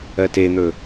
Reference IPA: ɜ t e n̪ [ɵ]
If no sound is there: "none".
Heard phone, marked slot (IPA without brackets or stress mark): ɵ